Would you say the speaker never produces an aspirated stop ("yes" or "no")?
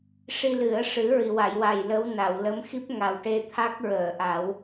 no